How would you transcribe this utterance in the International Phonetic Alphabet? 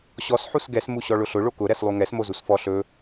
ɕ ɔ s ħ u s ɡ ɛ s m u ɕ ɔ ɭ ʊ ɬ ʊ ɭ o k ʊ ɾ ɛ s lˠ u ŋ ɛ s m o z u s f ɔ ɬ ɵ

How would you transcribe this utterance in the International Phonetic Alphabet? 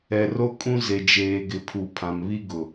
ɛ˨ r o˦ kʼ ũ˦ z e˨ d͡ʒ eː˨ ɡ ɪ˨ pʰ u˨ pʰ ã˨ m β i˦ ɡ ʊ˨

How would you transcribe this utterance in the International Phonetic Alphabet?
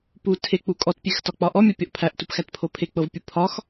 p u tʰ e k͡p u kʼ ɔ t pʲ e x t ɒ k͡p ɒ ʔ ɔ mʲ ɒ pʲ ɔ ʔ pʰ æ ʔ t u p x æ t pʰ o pʰ e k͡p ɤ v pʲ u pʰ ɒ x

